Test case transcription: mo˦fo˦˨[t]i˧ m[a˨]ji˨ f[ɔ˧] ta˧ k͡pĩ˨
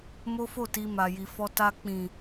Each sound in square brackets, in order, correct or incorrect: correct, correct, correct

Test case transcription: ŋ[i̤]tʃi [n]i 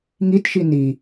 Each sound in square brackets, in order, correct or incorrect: incorrect, correct

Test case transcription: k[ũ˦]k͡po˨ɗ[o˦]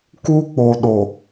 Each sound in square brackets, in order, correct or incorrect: incorrect, incorrect

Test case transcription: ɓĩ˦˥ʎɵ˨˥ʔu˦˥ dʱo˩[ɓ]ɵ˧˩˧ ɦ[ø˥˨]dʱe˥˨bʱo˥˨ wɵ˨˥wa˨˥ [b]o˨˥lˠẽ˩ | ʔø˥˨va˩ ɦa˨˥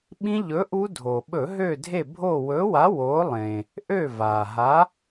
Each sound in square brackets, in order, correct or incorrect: correct, correct, incorrect

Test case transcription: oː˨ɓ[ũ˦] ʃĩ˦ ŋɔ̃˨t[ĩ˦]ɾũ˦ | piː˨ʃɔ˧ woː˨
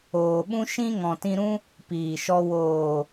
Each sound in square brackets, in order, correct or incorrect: correct, incorrect

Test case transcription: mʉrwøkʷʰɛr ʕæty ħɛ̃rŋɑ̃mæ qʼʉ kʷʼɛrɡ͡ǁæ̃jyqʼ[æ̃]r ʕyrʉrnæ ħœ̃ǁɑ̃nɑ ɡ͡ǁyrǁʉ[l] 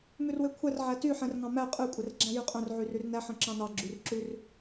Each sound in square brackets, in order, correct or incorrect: incorrect, incorrect

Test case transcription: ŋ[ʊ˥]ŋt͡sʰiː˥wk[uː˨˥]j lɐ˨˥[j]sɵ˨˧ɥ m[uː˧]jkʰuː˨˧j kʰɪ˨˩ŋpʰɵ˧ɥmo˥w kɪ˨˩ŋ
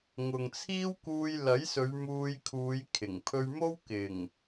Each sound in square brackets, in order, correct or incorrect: incorrect, incorrect, correct, correct

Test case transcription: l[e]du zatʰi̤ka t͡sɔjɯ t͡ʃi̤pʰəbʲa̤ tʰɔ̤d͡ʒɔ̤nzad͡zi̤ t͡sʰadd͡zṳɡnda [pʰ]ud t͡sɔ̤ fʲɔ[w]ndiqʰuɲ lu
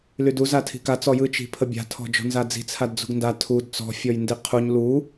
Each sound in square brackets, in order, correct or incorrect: incorrect, incorrect, incorrect

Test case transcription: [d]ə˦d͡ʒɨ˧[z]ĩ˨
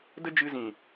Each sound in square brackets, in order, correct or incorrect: correct, correct

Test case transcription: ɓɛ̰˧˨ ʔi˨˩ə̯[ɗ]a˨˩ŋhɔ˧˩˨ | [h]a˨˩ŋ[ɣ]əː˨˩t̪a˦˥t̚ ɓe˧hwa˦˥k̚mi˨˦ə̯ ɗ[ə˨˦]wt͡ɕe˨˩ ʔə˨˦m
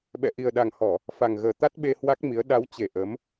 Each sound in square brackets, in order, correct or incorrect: correct, incorrect, correct, incorrect

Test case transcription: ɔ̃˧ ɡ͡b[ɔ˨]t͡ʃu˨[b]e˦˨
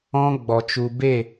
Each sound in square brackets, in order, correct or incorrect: correct, correct

